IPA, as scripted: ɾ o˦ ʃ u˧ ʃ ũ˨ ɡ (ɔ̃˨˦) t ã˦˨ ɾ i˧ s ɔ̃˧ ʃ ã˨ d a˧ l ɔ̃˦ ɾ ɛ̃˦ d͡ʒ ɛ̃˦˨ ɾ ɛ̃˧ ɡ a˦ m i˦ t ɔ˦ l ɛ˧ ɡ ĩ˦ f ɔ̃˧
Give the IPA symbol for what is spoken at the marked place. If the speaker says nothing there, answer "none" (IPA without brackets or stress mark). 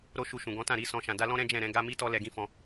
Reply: ɔ̃˨˦